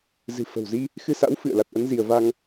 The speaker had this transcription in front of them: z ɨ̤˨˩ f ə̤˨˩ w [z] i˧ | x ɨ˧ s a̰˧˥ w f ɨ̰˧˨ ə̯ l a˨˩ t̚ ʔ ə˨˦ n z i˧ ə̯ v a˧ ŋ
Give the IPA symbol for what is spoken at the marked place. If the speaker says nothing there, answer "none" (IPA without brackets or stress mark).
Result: z